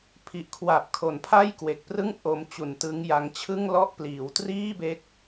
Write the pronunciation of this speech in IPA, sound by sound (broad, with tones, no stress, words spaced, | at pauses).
pʰi˨˩ʔkʰwa˨˩p̚kʰo˩˦n pʰa˥˩jkwe˨˩k̚prɯ˥˩ŋ ʔo˧m t͡ɕu˨˩ntɯ˦˥ŋja˦˥ŋ t͡ɕʰɯ˥˩ŋlɔ˥˩ʔ pliː˩˦wtriː˥˩be˦˥k̚